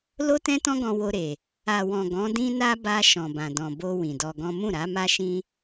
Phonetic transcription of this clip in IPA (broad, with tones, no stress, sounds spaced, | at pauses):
l o˦ t ɛ̃˦ t ɔ̃˦ ɡ ɔ̃˧ w o˧ ɾ e˨ | a˨ w ɔ̃˨ ɡ ɔ̃˨˦ d ĩ˦ n a˦ b a˧ ʃ ɔ̃˨ b ã˨ d ɔ̃˨ b o˧ w ĩ˨ d ɔ˧ ɡ ɔ̃˦ m ũ˦˨ ɾ a˨˦ m a˦ ʃ ĩ˦